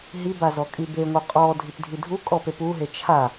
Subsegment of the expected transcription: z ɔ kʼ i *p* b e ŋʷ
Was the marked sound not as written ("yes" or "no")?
yes